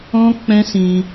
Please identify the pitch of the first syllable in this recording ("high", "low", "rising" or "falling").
high